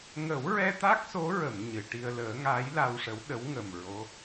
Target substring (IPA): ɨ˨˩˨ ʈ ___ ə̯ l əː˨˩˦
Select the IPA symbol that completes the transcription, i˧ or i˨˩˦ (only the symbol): i˧